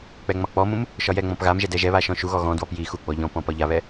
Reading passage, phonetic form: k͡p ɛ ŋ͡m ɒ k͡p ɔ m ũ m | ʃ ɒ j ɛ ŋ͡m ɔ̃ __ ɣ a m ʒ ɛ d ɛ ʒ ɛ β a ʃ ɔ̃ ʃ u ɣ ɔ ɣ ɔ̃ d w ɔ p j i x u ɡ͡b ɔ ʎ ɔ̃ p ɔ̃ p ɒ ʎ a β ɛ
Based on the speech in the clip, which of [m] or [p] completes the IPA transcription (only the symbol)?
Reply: p